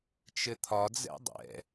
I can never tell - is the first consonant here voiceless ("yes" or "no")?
yes